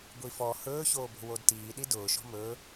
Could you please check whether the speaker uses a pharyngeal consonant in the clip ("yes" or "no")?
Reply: no